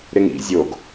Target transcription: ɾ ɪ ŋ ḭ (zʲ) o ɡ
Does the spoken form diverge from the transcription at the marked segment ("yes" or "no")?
no